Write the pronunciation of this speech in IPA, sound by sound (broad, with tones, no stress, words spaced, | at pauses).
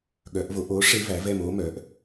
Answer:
ɠœ˨˩˦ʔvo˨˩˦ʔ o˩˥ ʂe˦˥væ˩˥vɛ˦˨m o˦˥mœ˩˥ʔ